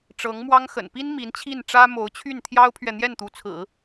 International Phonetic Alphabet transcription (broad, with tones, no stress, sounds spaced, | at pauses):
ʈ͡ʂ ɤ˧˥ ŋ m w ɑ˥ ŋ x ə̰˨˩ n p i˥ n m i˧˥ n t͡ɕʰ i˥˩ n ʈ͡ʂ ä˥ m o˧˥ ʊ̯ t͡ɕʰ y˥˩ n t̪ʰ j ɑ˥ ʊ̯ pʰ ɥ ɛ˨ n̪ j ɛ˥˩ n t̪ u˧˥ t͡sʰ ɹ̩˨˩˦